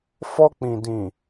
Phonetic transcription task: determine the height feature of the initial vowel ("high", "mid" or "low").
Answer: mid